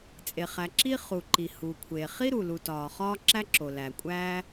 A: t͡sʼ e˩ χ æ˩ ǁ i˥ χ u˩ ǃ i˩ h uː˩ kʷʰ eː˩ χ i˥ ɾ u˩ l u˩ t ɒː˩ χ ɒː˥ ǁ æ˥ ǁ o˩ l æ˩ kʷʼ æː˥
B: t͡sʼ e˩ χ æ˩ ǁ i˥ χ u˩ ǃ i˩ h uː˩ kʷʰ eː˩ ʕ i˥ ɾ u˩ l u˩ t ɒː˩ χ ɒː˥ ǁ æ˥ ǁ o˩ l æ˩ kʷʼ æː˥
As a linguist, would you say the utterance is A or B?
A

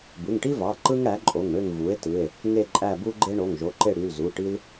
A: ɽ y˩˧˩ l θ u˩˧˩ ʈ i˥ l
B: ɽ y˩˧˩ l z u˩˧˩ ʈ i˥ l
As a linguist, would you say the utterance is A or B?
B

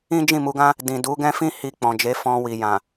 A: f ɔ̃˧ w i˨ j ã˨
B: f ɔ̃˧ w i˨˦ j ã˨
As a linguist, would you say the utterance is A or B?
A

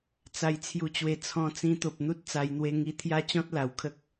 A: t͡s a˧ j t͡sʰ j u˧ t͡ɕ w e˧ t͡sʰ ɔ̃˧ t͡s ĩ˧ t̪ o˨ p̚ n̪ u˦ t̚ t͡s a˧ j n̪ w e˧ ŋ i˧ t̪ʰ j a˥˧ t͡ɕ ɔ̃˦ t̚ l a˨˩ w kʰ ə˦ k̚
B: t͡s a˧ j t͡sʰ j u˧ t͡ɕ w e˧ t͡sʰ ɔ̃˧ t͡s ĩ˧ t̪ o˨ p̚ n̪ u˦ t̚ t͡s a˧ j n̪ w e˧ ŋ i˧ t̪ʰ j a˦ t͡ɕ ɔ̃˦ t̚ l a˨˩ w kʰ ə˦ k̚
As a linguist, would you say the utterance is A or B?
B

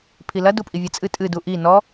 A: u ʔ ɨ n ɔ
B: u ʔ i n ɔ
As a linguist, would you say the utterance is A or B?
B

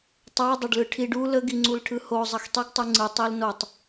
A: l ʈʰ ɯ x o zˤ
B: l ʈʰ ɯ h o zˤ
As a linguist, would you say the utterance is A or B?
B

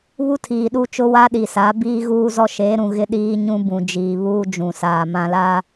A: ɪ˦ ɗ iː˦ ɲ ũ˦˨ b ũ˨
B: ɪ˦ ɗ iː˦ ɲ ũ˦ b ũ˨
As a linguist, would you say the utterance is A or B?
B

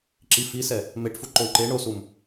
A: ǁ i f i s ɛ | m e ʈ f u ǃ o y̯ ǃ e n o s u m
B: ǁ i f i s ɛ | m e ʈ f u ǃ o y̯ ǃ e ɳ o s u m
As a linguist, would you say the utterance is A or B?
B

